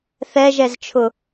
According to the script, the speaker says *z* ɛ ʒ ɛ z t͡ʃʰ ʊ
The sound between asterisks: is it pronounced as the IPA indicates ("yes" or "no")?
no